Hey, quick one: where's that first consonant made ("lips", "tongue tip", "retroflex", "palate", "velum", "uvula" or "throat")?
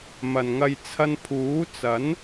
lips